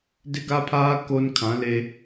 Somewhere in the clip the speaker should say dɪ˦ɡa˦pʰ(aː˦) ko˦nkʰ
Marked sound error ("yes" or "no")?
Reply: no